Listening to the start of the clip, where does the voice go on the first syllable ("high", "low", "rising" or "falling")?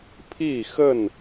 falling